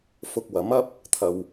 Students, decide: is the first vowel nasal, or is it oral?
oral